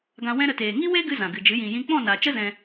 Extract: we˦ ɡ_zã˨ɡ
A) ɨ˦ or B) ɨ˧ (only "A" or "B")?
A